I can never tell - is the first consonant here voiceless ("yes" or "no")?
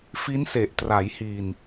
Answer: yes